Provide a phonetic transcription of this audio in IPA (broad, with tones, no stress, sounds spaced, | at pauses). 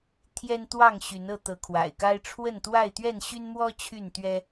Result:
t̪ʰ j ɛ˦ n t̪ w ɑ˥˨ ŋ ɕ y˨˦ n ɤ˥˨ t̪ ɤ˨˦ kʰ w a̰˨˩ ɪ̯ k a˦ ɪ̯ ʈ͡ʂʰ w ə˥˨ n t̪ w a˥˨ ɪ̯ t̪ ɥ ɛ˥˨ n ɕ y˦ n m w ɔ˦ t͡ɕʰ y˥˨ n t̪ ɥ ɛ˦